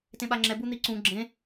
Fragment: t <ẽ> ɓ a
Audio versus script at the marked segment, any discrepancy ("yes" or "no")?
no